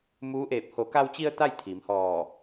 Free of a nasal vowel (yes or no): yes